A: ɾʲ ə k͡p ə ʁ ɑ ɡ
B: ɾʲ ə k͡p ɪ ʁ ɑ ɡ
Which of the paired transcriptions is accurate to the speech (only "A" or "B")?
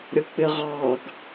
B